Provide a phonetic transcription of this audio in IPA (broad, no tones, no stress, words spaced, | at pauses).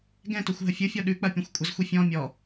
ɡɛ̃toxʷ ɦəfʲɯfʲɔ ɗʉk͡pɐ pʲɛ̃xʷkʷʼɐzxʷi fʲɔ̃ mʲɔ